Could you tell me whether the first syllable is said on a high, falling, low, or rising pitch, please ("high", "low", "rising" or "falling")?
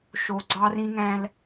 low